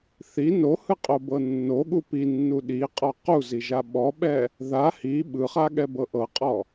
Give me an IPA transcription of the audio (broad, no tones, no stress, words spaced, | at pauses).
θi nohɯqʼobɤ nːoɠu pinːu ɗiqʼɔ quziʒa ɓɔɓɛ | ða hi ɓɯχaɠɛbɤ ʔɤqʼɔ